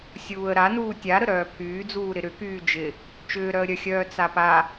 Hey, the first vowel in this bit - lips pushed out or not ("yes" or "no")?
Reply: yes